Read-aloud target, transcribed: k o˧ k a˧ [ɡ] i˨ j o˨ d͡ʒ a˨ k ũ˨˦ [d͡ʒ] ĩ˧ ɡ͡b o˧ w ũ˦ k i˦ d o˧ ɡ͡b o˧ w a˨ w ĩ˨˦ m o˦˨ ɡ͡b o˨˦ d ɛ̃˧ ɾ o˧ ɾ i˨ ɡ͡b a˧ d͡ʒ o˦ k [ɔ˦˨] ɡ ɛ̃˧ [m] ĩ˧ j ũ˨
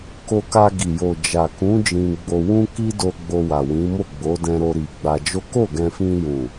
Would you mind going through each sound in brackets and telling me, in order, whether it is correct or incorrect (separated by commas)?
correct, correct, incorrect, incorrect